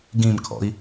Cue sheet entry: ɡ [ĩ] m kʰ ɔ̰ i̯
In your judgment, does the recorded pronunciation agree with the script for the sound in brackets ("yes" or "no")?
yes